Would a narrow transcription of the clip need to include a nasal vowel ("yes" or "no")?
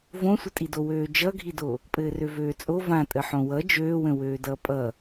yes